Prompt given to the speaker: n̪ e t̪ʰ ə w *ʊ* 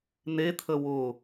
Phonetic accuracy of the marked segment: correct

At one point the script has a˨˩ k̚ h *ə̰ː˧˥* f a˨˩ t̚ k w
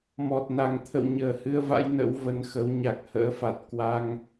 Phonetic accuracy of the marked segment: correct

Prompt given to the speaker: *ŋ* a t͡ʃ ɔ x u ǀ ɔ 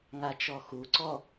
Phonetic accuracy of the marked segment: correct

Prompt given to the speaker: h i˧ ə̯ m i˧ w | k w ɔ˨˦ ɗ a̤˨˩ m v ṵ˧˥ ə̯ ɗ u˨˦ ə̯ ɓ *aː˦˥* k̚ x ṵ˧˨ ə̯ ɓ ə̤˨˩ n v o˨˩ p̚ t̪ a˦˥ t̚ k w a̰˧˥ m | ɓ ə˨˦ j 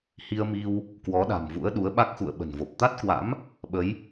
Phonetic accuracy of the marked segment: incorrect: a˦˥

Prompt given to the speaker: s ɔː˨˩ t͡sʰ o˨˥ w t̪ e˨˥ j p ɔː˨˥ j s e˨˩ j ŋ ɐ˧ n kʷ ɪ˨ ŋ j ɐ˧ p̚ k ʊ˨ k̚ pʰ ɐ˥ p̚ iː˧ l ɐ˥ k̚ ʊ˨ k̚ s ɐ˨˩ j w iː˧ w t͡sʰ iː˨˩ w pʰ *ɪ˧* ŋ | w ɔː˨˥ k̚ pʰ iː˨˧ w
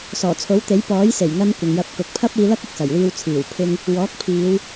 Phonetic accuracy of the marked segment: correct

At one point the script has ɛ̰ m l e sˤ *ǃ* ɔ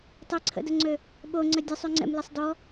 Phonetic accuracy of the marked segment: incorrect: d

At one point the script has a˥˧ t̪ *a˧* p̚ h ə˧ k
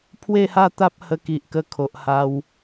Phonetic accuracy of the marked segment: incorrect: a˦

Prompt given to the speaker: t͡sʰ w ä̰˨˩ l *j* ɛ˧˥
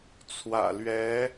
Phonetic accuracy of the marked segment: incorrect: ɥ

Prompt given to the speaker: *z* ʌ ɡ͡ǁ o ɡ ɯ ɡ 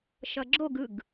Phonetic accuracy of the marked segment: incorrect: ʃ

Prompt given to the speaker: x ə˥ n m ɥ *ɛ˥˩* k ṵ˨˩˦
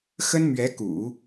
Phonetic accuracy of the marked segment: incorrect: ɛ˧˥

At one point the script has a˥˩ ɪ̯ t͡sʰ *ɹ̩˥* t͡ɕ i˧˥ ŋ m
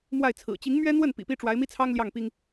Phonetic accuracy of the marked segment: incorrect: ɹ̩˨˩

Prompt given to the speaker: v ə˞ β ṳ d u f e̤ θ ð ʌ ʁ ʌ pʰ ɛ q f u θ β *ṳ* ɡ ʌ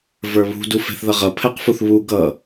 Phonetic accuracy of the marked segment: incorrect: u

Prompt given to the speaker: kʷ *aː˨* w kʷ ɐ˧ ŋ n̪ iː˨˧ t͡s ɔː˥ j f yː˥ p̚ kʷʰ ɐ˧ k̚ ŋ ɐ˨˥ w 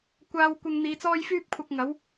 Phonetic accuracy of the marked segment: incorrect: aː˧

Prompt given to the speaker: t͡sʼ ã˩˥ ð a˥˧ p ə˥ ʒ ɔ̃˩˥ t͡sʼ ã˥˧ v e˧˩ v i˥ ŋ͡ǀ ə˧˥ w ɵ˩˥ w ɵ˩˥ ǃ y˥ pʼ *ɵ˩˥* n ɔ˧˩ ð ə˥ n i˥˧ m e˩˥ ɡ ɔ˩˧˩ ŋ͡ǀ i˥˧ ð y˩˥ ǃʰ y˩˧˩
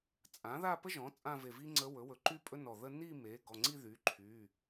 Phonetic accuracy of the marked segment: incorrect: ɵ˥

